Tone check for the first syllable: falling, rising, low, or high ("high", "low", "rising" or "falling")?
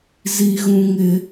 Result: high